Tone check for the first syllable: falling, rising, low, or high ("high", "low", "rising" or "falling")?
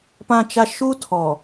high